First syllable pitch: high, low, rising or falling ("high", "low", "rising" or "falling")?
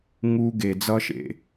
high